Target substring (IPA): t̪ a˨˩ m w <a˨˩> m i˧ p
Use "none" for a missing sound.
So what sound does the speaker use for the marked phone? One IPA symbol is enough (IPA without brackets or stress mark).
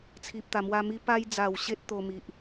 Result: a˧